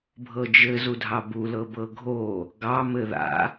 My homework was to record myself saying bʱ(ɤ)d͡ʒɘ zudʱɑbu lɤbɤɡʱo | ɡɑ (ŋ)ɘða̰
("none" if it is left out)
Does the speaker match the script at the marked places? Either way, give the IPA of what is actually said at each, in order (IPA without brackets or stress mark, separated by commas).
ɤ, m